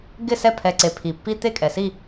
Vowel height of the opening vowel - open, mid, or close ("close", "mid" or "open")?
close